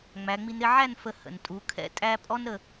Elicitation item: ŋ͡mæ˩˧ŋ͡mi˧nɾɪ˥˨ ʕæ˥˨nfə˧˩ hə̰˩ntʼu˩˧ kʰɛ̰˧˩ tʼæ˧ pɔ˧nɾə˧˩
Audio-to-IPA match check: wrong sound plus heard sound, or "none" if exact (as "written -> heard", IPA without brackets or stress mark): p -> pʼ